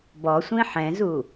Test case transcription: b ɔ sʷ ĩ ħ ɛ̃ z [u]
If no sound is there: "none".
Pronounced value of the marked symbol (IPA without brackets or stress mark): u